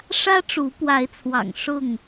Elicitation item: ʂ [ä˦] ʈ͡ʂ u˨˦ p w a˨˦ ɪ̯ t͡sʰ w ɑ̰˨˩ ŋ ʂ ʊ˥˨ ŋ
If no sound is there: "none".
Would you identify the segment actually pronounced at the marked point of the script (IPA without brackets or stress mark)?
ä˦